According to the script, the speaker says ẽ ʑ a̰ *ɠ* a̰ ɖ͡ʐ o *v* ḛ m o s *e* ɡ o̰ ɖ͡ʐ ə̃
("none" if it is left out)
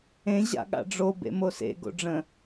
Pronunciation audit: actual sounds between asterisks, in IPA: ɠ, b, ḛ

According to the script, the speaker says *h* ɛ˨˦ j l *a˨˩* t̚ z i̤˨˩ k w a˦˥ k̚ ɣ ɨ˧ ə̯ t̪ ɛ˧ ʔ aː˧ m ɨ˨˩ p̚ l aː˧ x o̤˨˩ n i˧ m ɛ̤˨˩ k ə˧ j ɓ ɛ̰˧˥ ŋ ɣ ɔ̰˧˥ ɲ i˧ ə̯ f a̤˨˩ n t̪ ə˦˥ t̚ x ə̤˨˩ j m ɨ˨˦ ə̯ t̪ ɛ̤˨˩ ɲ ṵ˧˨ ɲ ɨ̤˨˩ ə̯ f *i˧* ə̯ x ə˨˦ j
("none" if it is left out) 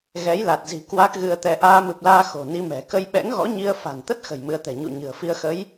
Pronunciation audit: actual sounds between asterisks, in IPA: ɣ, a˨˩, i˧

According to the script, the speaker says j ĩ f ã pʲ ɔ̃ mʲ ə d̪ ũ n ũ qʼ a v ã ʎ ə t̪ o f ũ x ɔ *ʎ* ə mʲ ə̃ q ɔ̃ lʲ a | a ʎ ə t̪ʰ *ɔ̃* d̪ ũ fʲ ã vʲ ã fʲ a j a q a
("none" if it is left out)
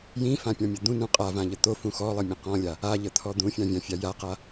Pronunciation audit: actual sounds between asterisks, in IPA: lˠ, ɔ

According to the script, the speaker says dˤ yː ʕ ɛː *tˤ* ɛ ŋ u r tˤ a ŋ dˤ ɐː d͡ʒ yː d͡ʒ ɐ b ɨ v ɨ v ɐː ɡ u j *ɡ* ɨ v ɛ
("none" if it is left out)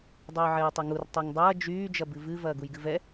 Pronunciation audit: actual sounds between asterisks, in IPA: tˤ, ɡ

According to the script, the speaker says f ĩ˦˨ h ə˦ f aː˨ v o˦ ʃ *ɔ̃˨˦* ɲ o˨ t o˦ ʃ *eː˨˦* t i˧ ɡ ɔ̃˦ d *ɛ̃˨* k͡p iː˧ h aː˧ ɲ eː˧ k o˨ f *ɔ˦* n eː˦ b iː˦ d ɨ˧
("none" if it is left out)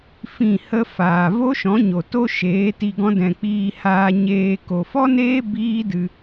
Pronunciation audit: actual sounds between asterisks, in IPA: ɔ̃˨˦, eː˨˦, ɛ̃˨, ɔ˦

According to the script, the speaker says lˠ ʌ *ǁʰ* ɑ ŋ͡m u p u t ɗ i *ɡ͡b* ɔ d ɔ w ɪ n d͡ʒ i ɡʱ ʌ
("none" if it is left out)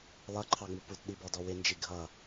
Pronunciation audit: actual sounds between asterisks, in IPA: ǃʰ, b

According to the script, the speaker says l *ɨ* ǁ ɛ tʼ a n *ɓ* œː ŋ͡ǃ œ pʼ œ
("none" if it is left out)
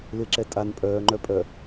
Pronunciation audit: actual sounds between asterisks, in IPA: ɪ, pʼ

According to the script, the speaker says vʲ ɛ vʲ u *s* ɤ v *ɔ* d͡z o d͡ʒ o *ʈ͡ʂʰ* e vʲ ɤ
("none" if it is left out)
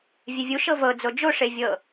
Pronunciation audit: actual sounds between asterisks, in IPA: ʃ, ɤ, ʂ

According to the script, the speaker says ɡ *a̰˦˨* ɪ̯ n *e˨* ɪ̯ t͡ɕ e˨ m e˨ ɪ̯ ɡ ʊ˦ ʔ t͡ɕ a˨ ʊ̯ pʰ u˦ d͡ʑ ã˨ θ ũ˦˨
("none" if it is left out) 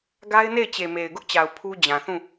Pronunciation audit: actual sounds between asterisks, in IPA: a˦, e˦˨

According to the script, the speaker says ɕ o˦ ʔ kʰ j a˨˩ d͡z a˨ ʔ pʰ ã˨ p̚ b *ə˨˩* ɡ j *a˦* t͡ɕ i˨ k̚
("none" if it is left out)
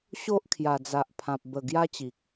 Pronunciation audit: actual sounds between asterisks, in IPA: ə˨˩, a˦

